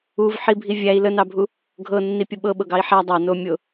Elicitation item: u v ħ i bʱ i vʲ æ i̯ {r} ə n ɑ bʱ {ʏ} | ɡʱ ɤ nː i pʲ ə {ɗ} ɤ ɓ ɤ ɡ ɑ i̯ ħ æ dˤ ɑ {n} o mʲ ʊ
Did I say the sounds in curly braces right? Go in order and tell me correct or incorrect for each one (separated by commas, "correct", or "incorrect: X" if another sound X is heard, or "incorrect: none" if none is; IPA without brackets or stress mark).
incorrect: l, incorrect: u, incorrect: ɓ, correct